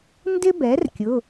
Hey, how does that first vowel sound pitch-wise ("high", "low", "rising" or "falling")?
high